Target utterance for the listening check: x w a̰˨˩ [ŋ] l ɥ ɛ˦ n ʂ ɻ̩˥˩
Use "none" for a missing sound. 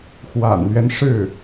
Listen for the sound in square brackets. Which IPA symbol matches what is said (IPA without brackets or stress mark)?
n